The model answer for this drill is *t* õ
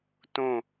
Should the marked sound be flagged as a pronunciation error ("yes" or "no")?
no